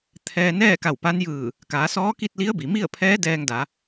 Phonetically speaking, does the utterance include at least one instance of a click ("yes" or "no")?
no